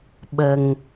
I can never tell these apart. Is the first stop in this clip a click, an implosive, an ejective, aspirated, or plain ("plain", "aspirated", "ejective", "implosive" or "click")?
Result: implosive